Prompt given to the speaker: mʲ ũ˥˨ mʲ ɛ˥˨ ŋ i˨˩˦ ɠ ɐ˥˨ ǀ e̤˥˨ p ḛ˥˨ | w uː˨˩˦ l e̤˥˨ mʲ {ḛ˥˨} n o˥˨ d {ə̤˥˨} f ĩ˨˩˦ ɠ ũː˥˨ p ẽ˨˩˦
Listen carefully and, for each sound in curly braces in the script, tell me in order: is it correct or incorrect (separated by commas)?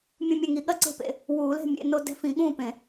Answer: correct, incorrect